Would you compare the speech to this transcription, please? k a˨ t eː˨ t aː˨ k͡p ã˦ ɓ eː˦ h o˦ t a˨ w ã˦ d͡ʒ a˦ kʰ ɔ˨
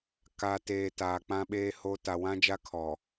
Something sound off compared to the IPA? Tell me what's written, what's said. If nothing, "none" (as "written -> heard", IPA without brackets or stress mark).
none